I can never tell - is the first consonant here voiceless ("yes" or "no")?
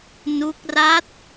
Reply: no